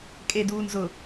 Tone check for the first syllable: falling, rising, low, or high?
low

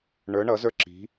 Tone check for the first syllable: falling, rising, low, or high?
rising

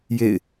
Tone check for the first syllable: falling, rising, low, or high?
falling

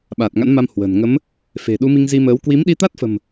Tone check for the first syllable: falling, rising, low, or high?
low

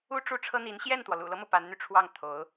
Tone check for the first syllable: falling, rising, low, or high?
high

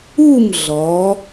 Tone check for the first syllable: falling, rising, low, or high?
falling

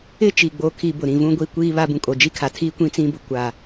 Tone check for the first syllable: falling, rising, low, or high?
falling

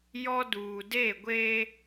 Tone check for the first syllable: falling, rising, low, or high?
high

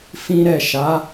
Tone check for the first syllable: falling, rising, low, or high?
high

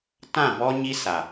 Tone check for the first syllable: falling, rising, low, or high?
falling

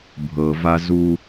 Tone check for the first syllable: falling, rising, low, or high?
low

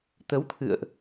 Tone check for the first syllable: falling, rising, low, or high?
rising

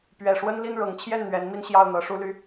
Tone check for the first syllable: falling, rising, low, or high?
low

